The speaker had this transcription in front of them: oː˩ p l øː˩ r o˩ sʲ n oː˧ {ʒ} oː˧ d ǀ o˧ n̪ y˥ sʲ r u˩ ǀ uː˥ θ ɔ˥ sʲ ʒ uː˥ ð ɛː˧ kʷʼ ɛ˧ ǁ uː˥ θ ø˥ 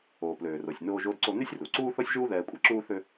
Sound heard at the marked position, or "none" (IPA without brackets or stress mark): ʒ